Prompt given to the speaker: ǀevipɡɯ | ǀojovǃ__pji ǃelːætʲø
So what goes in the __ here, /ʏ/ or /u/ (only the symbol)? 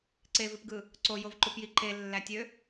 u